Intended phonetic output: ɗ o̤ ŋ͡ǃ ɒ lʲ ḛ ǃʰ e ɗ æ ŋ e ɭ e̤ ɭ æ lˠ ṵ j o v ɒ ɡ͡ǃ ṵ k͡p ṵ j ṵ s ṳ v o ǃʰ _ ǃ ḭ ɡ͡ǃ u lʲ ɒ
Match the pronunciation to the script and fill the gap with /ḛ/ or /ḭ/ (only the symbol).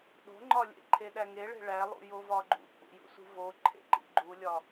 ḛ